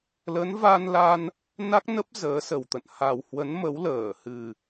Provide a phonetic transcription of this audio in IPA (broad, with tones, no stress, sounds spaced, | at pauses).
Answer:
l ə˨˦ n v a˧ n l a˧ n | n a˦˥ k̚ n ə˦˥ p̚ z əː˨˦ s ə˨˩ w t̪ ə̰˧˨ n h a˨˩ w h w ə˨˦ n m ə˨˦ w l əː˧˩ h ɨ˨˩